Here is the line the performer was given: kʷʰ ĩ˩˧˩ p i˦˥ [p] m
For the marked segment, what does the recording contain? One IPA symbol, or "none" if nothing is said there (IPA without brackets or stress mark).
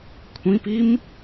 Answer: none